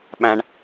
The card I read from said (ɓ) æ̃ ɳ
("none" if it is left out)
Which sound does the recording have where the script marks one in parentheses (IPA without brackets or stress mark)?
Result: ɓ